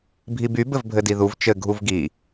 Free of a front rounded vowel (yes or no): no